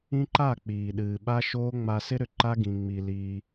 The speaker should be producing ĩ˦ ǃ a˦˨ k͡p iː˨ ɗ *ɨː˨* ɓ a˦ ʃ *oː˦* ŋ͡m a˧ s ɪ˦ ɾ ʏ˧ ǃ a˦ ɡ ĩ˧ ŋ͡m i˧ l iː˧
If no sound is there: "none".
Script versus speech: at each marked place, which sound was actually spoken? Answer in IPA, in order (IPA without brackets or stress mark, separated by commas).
ɨː˨, oː˦